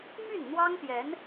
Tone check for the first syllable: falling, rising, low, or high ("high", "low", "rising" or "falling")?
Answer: falling